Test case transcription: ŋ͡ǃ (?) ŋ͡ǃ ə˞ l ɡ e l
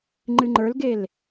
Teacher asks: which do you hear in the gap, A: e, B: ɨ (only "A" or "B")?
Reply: B